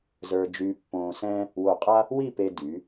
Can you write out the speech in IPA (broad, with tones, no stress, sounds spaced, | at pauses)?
z ə˞˧ d͡ʒ y˧ pː õː˧ s ɛ̃˥ | w o˧˩ qʼ a˥ | w i˥˧ p e˧ d y˩˧